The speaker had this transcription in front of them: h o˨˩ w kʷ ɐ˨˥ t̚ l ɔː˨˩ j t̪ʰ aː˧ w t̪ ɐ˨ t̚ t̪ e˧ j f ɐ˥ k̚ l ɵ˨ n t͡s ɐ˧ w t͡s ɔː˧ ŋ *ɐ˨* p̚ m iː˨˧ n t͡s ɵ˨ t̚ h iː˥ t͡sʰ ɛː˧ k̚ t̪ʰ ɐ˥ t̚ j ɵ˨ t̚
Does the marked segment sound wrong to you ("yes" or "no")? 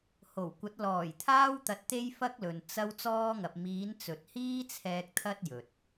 no